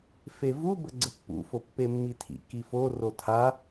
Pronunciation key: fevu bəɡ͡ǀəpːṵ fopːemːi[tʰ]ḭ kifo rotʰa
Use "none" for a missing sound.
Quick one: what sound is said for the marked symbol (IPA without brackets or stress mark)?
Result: tʰ